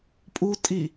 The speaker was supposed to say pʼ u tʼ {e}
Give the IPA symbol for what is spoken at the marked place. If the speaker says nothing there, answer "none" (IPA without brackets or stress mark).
i